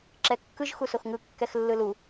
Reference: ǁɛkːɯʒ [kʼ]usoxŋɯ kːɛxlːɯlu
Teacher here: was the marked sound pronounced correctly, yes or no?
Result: no